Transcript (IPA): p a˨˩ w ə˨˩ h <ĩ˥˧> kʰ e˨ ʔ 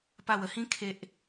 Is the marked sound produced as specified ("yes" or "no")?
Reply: no